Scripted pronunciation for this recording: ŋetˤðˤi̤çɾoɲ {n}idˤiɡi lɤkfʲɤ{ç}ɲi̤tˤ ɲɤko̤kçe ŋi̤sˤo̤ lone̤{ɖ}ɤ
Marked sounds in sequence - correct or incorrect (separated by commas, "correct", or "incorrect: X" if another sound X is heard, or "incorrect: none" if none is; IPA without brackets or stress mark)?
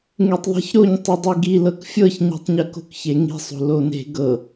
incorrect: tˤ, correct, incorrect: ɡ